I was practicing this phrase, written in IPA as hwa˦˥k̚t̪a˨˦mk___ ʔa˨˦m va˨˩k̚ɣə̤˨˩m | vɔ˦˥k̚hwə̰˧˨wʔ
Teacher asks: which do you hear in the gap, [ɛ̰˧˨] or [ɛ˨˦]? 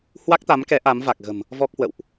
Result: ɛ˨˦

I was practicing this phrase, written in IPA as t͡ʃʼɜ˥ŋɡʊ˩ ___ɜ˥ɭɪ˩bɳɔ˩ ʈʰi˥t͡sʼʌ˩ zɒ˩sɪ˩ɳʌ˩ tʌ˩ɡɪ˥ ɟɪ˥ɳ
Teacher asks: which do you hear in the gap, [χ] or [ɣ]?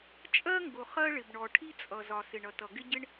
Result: χ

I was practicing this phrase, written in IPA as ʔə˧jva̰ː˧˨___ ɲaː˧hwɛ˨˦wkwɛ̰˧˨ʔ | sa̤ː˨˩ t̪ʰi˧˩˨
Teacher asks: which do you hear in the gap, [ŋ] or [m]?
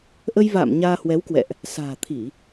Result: m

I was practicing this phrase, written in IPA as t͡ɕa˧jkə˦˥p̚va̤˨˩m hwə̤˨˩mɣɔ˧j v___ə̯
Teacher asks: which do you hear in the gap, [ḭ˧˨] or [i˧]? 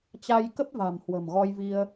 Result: i˧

